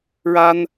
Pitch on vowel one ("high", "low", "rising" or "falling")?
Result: high